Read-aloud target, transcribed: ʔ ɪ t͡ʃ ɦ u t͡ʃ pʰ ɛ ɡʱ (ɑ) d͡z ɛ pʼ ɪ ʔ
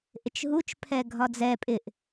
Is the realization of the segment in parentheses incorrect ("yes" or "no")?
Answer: yes